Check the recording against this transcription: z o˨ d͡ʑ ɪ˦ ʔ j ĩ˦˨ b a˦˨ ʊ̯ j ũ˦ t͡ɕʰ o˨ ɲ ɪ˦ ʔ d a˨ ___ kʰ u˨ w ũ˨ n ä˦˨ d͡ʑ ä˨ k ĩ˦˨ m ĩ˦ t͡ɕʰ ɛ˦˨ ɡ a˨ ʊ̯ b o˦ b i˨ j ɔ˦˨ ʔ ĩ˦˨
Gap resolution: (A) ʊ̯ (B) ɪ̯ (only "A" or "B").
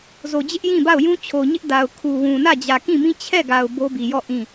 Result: A